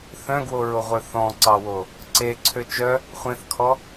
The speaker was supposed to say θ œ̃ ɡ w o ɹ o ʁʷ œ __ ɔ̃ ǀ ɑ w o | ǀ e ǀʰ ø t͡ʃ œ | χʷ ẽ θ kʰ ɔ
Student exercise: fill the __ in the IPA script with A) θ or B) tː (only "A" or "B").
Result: A